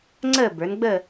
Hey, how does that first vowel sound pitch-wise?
falling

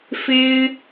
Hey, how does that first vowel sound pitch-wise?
high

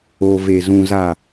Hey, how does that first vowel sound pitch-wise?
low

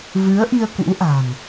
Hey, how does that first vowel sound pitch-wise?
rising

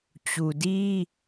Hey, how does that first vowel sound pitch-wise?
low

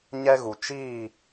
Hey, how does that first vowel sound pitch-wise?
high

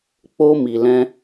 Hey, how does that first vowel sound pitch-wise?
high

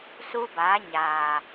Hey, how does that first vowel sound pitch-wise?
high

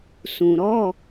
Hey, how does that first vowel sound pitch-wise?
low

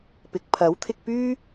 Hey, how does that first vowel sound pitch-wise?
rising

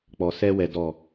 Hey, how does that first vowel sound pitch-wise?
low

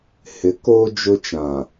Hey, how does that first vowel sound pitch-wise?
rising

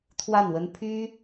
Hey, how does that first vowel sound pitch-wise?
falling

